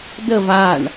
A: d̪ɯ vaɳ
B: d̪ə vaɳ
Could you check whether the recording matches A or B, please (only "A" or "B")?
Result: B